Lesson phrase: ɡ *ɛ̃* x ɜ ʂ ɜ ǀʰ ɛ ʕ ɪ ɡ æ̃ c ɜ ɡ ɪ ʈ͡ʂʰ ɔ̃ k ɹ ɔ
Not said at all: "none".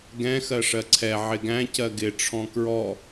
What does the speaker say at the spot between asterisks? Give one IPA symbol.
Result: ɛ̃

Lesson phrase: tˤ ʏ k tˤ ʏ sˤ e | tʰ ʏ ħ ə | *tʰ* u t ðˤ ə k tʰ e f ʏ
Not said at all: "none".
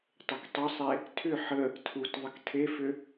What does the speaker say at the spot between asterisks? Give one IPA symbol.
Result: tʰ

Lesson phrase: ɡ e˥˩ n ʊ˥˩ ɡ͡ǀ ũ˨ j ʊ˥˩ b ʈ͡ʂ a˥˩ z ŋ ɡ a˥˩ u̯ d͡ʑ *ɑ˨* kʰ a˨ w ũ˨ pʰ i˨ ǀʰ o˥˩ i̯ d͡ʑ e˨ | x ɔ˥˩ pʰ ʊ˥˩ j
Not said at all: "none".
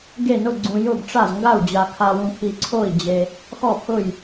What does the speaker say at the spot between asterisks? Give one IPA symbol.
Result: a˨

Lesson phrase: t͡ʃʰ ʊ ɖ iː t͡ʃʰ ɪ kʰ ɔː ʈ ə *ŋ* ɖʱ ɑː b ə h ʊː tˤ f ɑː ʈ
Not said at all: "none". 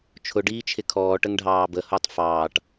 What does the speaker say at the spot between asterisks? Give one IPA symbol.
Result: ŋ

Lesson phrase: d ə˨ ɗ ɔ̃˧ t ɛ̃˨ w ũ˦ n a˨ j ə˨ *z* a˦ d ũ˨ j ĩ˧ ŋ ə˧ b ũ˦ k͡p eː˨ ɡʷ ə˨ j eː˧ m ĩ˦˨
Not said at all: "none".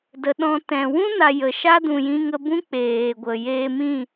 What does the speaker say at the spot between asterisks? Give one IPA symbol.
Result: ʃ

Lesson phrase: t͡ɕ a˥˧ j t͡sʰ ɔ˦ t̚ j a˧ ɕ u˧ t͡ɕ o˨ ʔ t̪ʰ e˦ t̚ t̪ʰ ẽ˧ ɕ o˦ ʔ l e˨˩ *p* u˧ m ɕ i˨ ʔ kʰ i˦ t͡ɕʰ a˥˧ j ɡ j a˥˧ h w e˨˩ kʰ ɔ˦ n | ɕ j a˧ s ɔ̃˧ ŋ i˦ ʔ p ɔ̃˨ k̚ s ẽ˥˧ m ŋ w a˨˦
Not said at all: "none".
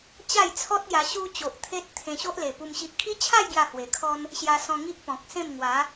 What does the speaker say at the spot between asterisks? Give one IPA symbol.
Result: p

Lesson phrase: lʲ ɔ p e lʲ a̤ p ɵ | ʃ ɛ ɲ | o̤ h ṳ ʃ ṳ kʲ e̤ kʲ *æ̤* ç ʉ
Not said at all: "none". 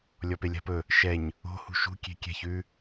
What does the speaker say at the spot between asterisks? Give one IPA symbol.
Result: ɛ̤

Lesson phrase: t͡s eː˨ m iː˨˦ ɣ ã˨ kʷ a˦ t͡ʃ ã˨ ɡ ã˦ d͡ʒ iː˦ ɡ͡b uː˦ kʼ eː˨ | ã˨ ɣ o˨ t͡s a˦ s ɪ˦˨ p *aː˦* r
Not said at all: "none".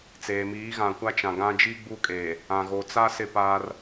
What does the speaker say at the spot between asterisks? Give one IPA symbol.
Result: aː˦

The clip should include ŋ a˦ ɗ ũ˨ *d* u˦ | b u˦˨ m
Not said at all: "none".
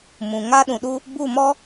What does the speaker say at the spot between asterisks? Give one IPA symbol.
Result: ɗ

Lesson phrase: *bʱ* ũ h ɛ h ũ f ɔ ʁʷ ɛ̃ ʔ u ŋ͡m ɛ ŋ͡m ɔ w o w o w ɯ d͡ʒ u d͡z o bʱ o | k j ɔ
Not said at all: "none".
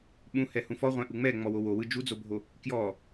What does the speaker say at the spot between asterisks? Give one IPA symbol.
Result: ɓ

